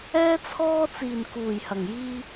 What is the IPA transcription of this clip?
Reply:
ɛː˧ t͡sʰ ɔː˧ t͡s iː˨˩ n k uː˨˩ j h ɐ˨˩ ŋ j iː˧

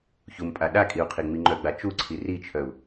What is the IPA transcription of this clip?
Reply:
ç u m pʼ a ɗ a kʼ i u̯ qʰ i ŋ͡m i ŋ͡ǃ œ ɡ͡b a t͡ʃ u ǀʰ i r i t͡ʃʰ œ u̯

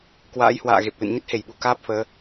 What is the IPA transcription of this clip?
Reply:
k w a̰ː˧˥ j h w a̰ː˧˨ ɣ e˨˩ p̚ l ɨ̰˧˨ n ɲ ə˦˥ t̚ h e˧˩ j ɓ u˧˩ k aː˦˥ p̚ f əː˨˦

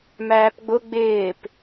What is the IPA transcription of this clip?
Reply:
m æː p ɡ͡b ʊ ɡ͡b ɪː p

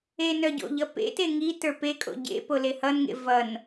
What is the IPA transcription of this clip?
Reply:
e n œ ɟ o̰ ʎ ʌ p ḛ t e ŋ i t ə˞ p e kʼ o̰ ɟ ḛ p o l e h ʌ n ŋ ḛ v ʌ n

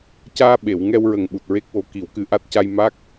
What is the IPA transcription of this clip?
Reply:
c aː˧ ɓ e˨˩˨ w ŋ ɛ˧ w ɹ ə˨˩ ŋ ɓ u˨˩ t̚ ɹ e˦˥ k̚ w o˧˥ k i˨˩˦ w k ɨ˧˥ ʔ a˦˥ t̚ c a˧ j m a˦˥ k̚

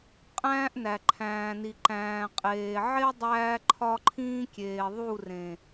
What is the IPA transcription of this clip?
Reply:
qʼ æ̃ː˦ ʔ n æ˨ ǃʰ æ̃ː˨ n i˨ ǃ æ̃ː˨ qʼ eː˨ ʕ e˦ dˤ æː˦ ǃʰ ɒ˦ ǃʰ ĩː˦ kʲ eː˨ ðˤ u˦˨ r ẽ˨

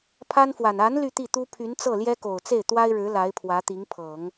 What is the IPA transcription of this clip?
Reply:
pʰ a˥ n f w a˨˩ n a˧˥ n l y˥˧ t̪ i˥˩ t̪ u˥ pʰ y˧˥ n t͡s ɤ˥˩ l j ɛ˥ k o˨˩ ʊ̯ t͡s e˥˩ ɪ̯ t̪ w a˥ ɪ̯ ɻ ɻ̩˧˥ l a˧˥ ɪ̯ pʰ w ä˧˥ t̪ i˧˥ ŋ pʰ ɤ˨˩˦ ŋ

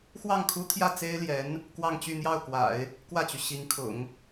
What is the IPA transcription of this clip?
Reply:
x w ɑ˥˩ ŋ kʰ u˥ t̪ʰ j ä˥˩ t͡s e˥ ɪ̯ l j ɛ˧˥ n | k w ɑ˥˧ ŋ t͡ɕ y˥˧ n̪ j ɑ˥˩ ʊ̯ k w a̰˨˩˦ ɪ̯ | k w ä˥˩ t͡ɕ y˩ ɕ i˧˥ ŋ kʰ ʊ̰˨˩˦ ŋ

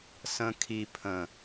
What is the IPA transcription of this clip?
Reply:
s ə̃ kʰ i pʰ ə̃

